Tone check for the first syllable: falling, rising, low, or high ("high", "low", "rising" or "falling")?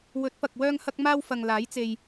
rising